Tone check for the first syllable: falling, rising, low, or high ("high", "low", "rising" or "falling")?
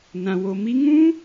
low